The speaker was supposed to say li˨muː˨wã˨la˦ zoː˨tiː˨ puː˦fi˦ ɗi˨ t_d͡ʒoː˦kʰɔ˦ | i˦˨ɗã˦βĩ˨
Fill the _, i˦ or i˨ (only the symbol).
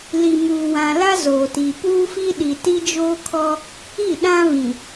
i˦